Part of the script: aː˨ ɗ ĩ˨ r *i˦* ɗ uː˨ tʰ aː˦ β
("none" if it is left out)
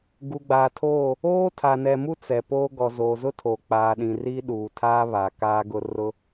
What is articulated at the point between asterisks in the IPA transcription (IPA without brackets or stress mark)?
i˦